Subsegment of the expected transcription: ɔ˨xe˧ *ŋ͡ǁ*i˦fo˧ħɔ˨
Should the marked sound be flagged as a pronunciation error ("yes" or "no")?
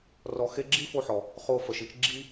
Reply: yes